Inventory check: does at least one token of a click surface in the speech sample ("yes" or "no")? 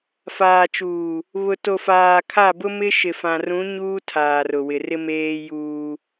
no